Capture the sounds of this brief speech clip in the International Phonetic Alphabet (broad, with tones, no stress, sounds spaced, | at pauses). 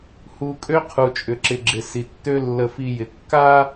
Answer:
h u˨ kʼ ø˦ qʰ u˨ t͡ʃʼ ʏ˨ ǁ ɪ˨ ɡ͡ǁ ɪ˨ s i˨ tː ø˦ lː ə˦ f i˦ j ɪ˨ kː a˦